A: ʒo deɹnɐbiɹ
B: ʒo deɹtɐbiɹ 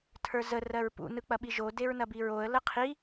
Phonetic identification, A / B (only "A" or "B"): A